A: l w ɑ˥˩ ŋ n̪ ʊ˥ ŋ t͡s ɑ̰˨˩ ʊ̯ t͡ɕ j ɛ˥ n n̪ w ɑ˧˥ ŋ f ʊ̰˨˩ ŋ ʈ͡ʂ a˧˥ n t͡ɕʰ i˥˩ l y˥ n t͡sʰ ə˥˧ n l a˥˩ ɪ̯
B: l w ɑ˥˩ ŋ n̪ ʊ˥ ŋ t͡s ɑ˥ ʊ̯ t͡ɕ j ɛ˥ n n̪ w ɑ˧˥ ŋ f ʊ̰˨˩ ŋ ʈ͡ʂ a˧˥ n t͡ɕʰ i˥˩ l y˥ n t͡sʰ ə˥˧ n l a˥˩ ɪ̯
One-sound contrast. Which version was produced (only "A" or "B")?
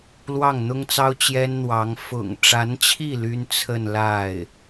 B